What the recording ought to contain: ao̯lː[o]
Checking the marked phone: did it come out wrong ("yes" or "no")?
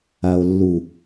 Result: yes